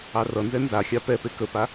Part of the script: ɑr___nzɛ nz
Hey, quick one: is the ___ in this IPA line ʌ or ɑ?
ʌ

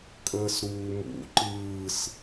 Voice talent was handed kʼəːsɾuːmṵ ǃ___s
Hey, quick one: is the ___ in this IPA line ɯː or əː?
ɯː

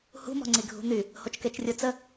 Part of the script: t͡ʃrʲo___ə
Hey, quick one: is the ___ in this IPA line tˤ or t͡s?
t͡s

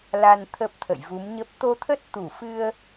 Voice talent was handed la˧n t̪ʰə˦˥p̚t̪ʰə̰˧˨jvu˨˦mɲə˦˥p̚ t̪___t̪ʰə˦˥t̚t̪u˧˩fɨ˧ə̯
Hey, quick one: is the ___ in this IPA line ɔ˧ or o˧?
o˧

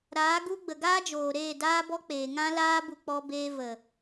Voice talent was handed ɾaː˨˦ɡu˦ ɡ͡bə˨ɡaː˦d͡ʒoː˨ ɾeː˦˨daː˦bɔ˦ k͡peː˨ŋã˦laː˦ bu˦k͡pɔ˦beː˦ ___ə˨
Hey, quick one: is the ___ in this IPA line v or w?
v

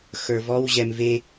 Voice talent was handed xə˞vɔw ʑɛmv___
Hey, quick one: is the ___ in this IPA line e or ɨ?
e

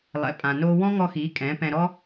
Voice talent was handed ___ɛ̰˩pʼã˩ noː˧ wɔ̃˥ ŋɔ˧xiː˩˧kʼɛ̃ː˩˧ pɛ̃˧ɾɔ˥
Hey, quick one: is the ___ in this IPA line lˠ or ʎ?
lˠ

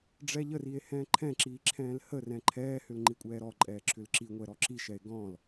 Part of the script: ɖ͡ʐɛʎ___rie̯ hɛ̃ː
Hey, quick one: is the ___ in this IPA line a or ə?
ə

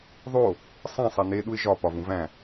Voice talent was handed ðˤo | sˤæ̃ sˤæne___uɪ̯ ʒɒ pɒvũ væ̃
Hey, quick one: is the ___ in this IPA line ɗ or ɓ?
ɗ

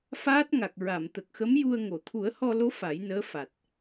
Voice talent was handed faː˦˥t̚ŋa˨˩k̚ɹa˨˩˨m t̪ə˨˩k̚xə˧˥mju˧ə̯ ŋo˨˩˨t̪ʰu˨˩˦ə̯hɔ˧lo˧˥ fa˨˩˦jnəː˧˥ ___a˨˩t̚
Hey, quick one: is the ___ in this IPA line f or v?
f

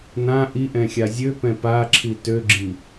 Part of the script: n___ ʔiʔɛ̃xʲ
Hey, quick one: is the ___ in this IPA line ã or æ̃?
ã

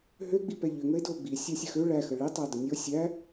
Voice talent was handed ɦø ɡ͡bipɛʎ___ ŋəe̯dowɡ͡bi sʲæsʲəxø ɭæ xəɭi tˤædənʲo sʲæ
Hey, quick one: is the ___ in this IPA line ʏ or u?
ʏ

